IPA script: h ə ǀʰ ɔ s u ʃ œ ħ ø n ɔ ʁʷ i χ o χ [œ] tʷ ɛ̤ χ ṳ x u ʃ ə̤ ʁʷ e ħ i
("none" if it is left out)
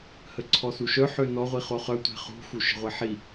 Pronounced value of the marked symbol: œ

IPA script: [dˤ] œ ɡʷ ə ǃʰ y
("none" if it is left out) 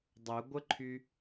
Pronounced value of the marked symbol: dˤ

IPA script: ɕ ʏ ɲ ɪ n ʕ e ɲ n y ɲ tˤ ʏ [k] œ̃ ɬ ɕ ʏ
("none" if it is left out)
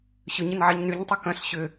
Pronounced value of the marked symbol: k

